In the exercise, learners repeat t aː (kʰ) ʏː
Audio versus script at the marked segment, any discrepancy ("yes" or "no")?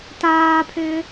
yes